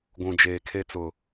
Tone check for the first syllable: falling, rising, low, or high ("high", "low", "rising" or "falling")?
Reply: low